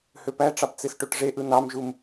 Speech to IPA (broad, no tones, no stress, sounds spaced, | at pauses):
h ø p æ ʈ͡ʂ ɑ p t͡s e s ʈ o ʈ ʐ e ʔ ɯ n ɑ m ʒ u m